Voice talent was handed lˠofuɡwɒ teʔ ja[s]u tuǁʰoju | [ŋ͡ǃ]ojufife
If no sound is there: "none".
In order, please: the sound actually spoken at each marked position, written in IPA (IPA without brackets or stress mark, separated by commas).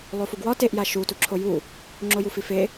ʃ, ŋ͡ǁ